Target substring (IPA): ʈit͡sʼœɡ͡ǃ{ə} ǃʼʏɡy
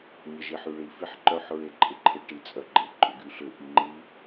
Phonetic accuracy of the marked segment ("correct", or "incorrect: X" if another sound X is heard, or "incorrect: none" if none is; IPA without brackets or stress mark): incorrect: ɪ